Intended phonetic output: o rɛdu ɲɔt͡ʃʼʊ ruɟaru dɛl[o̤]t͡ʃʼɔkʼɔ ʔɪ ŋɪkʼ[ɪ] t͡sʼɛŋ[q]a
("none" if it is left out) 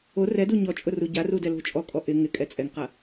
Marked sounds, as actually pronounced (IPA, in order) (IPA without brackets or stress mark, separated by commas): o̤, ɛ, q